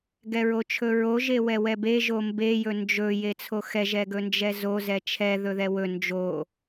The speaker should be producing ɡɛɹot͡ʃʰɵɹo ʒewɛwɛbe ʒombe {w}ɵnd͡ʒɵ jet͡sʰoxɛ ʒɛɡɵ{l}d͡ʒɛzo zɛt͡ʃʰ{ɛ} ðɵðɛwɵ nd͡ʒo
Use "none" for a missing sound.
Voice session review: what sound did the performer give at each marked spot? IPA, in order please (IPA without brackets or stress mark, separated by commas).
j, n, ɛ